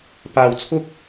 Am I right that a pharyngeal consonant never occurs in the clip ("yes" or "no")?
yes